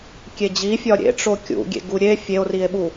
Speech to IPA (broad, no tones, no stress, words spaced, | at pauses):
kʲed͡ʑifʲɒ ɾʲḛʈ͡ʂo kʲṵɡʲḛɡu ɾʲe fʲeo̯rie̯ɓu